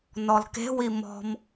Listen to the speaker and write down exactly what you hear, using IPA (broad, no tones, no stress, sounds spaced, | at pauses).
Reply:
n ɔ l k e̤ w i m ɔ̤ m